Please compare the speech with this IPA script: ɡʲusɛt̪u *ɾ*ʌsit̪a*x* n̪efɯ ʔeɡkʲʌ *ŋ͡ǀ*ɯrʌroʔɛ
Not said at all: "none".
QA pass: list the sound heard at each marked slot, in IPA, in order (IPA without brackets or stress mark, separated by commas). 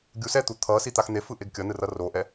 t̪ʰ, x, n